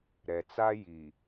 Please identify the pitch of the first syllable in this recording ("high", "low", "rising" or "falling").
low